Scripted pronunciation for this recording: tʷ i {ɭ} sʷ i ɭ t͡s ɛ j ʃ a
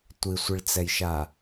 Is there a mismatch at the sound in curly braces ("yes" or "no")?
yes